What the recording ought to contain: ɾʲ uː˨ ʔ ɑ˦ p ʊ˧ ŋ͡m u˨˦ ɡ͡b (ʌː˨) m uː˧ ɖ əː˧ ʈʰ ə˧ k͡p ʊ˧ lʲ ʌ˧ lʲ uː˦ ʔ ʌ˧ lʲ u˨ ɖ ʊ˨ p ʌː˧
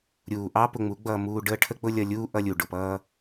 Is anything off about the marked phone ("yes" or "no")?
yes